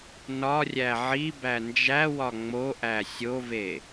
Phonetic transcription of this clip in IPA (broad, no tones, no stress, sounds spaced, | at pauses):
n ɒ rʲ æ ʕ i b æ n d͡ʒ æ w ɒ ŋ͡m o ʔ æ sʲ o v e